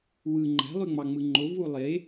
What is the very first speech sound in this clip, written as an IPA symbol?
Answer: w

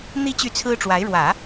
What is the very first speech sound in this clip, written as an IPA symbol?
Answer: n̪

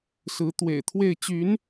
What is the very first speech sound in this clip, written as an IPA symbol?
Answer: s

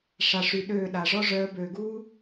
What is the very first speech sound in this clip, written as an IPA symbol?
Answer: ʂ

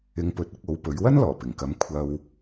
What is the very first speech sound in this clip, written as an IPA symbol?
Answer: ɪ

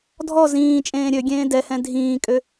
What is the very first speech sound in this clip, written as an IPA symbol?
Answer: dʱ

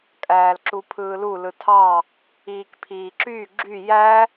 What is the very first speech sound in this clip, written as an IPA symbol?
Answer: kʼ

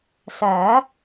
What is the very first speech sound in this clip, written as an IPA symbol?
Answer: s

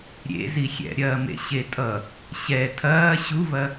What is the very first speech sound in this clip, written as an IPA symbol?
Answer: ɾʲ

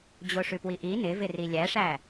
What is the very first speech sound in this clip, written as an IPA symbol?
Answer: d͡ʑ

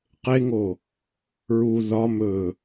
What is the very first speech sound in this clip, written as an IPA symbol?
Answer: q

